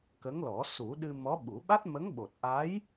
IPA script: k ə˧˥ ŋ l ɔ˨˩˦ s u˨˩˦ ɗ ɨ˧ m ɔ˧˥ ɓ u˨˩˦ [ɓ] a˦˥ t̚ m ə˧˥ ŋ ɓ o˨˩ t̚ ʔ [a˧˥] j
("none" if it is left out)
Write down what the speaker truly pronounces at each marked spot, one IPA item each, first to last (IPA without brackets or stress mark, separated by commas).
ɓ, a˧˥